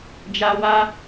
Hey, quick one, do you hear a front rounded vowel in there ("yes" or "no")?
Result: no